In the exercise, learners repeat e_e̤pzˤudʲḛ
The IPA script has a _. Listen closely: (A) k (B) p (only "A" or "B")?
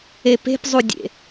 B